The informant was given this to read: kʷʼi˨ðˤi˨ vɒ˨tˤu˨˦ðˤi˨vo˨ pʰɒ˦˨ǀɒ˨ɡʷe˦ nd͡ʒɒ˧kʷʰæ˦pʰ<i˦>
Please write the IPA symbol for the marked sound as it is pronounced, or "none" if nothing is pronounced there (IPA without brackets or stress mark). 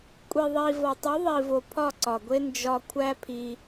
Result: i˧